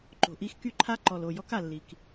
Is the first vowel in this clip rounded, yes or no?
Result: yes